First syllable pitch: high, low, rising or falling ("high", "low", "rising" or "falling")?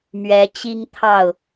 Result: rising